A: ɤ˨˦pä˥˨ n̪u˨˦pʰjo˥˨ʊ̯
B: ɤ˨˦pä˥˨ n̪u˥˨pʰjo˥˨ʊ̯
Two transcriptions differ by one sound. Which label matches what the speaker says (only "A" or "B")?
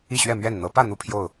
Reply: B